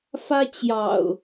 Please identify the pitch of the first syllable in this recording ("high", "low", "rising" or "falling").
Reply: high